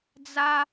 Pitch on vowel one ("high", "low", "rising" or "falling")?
high